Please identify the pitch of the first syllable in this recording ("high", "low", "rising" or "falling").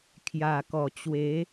low